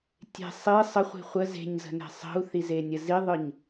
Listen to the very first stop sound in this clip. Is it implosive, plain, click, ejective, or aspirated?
plain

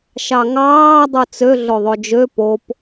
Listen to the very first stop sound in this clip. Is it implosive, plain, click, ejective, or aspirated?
plain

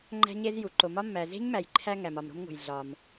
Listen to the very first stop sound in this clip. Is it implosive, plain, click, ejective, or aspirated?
click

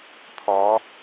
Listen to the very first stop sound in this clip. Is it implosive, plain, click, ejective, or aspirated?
aspirated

